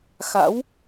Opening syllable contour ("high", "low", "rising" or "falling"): rising